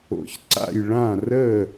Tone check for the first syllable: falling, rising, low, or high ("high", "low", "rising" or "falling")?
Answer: rising